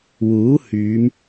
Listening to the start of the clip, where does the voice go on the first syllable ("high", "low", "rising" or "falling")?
rising